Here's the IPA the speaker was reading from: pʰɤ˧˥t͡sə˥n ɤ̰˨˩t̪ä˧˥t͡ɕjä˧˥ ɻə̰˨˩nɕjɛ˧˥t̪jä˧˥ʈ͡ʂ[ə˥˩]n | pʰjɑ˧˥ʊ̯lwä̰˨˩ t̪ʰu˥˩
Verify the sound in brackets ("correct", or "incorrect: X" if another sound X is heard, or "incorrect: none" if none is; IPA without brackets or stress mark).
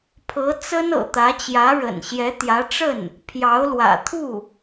correct